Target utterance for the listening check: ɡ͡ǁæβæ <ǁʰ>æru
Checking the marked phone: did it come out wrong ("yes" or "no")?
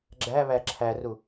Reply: no